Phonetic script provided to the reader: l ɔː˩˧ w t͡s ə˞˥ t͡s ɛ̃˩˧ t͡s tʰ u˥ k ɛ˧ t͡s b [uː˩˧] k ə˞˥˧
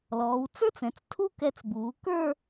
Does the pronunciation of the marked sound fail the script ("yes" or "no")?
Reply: no